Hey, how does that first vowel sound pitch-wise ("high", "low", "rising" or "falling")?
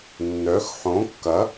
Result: rising